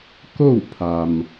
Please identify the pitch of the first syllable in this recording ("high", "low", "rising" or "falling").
falling